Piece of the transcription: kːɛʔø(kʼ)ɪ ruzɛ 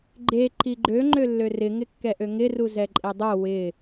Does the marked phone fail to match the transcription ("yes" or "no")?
yes